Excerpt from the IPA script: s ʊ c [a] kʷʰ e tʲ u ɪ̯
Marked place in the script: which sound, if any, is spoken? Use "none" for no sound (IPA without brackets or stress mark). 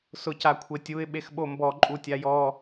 a